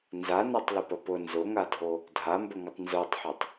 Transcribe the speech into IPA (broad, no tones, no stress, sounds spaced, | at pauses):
n z a n ɔ tˤ l ʊ p ə p ʊ n z ʊ ŋ a dʱ o | dʱ a m b ə ŋ ə tˤ n z o tˤ ħ o tˤ